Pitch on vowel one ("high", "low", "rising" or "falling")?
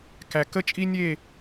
low